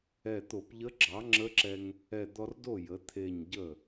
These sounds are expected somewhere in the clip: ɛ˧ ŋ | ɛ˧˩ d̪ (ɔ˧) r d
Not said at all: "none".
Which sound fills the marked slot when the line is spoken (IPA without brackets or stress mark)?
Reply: ɔ˧